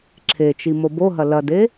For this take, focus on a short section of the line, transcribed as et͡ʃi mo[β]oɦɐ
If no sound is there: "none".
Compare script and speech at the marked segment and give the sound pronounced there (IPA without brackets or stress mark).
b